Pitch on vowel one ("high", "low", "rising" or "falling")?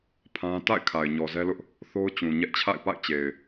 high